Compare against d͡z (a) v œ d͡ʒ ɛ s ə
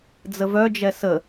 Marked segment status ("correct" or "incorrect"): incorrect